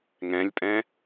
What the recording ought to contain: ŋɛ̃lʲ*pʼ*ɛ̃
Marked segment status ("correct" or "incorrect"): correct